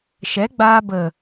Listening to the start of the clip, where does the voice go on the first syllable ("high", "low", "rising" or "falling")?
rising